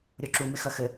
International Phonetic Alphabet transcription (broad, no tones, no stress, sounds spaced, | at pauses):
ɾʲ o ǁ u m ɪ x ɐ x ɘ